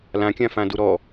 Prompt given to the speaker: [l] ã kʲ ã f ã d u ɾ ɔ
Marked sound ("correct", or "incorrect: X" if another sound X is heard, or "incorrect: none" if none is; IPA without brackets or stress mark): correct